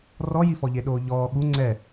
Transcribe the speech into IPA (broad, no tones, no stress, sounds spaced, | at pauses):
r ɔ j i f ɔ ʎ e ɗ oː ʎ ɔː ɠ u ŋ͡ǀ ɛ